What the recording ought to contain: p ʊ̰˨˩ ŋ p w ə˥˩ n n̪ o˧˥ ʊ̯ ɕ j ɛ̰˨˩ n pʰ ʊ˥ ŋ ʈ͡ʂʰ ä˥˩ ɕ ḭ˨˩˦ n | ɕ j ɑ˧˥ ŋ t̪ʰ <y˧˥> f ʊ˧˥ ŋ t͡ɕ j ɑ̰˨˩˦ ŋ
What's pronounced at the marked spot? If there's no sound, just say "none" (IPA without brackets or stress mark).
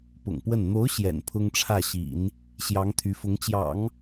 y˧˥